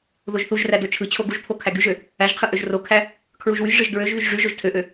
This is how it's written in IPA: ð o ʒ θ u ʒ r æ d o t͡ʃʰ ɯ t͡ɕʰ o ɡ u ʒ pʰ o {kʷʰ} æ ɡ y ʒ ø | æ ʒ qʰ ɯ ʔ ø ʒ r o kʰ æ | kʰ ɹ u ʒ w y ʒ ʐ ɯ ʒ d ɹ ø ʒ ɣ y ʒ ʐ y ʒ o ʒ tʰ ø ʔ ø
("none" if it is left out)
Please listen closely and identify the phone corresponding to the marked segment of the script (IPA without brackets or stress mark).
kʰ